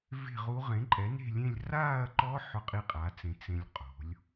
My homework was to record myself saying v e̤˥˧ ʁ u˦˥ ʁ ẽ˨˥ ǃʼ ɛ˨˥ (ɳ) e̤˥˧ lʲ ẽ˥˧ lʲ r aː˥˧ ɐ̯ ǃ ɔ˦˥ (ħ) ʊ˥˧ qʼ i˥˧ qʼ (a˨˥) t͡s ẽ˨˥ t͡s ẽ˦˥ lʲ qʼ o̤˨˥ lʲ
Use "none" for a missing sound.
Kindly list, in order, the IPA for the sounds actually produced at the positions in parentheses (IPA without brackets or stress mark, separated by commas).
n, ħ, a˨˥